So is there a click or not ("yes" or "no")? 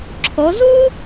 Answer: yes